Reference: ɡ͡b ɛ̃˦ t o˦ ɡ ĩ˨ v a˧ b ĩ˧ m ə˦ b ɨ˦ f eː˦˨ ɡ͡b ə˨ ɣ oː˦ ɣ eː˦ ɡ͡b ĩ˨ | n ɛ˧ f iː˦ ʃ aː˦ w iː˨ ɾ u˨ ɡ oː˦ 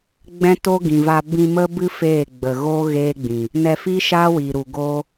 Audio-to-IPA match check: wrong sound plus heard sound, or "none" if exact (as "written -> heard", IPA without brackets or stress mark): none